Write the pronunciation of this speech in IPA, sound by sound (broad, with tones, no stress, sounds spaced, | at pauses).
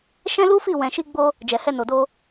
ʃ ɛ̃˦ l u˦ f i˦˨ w ɛ̃˨ ʃ i˧ ɡ͡b o˧ | d͡ʒ ɛ˨ h ɛ˧ n o˨ d o˧